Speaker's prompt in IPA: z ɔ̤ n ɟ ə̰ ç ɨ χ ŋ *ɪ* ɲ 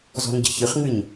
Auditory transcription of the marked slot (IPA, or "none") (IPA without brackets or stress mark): ɨ